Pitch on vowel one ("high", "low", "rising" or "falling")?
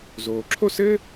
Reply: low